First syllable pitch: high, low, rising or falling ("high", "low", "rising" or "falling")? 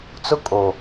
high